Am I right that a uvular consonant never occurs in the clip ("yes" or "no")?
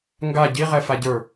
no